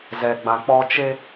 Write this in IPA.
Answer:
z ɛ˨ ɡ͡b ã˨ k͡p ɔ˦ t͡ʃ e˦

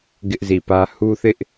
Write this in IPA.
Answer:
ɡ ɪ˦ ʔ z i˨ p ä˦ h u˦ θ ɪ˦ ʔ

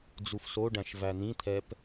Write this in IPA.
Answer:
d͡z u f s o ɖ æ̃ ʃ v æ n̪ ĩ t̪ʰ ɛ p

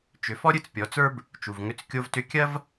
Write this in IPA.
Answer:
t͡ʃ ʏ˩˧ f ɔ˥ ɾʲ ɨ˧ t͡s pʲ ɔ˩˧ t͡s ə˞˥ b | t͡ʃ u˩ v ŋ ʏ˧˥ t͡s kʲ o˧ v t ʏ˧˥ kʲ ɐ˥ v

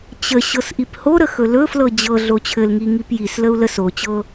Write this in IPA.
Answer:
t͡ɕ ə ɕ ɤ s ʔ i p h o ɾ ə x ɵ l ɵ f l ɤ d͡ʑ ɤ ɮ o t͡ɕʰ ɘ l ŋ i ŋ i p j i s l ə u̯ l ə s o t͡ɕ ɤ

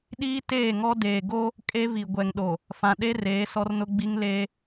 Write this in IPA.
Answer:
ɗ iː˦ t eː˦˨ ŋ ɔ˦ d eː˨ ɡ o˦ | kʼ e˦ v i˨ ɡʷ ɛ˨ ŋ ɗ o˨ | f ã˨ ɗ e˦ r eː˨˦ s ɔ˦ r n ʊ˦ ɡ͡b i˦ ŋ l eː˦

